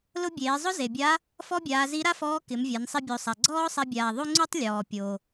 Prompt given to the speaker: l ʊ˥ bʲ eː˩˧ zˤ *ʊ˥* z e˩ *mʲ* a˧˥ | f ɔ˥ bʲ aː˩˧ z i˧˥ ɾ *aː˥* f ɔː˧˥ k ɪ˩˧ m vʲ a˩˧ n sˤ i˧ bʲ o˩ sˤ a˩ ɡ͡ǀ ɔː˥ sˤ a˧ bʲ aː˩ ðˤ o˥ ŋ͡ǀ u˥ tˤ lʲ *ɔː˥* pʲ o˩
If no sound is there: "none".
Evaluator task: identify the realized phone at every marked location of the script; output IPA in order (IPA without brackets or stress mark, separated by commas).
ʊ˥, bʲ, a˥, ɔː˩